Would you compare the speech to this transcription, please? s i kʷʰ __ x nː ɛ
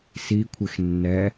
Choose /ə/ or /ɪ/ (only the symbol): ɪ